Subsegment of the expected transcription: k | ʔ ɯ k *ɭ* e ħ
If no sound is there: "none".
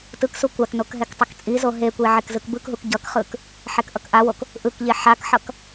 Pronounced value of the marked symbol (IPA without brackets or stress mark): ʎ